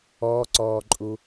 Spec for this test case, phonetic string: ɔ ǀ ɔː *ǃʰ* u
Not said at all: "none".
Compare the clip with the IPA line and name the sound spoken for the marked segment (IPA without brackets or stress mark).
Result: ǃʼ